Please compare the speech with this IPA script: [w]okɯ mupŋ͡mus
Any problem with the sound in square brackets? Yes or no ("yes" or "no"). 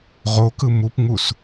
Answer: yes